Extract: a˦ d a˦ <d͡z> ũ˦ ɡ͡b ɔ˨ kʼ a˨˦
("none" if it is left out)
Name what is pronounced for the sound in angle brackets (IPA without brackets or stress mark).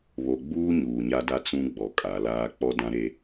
t͡s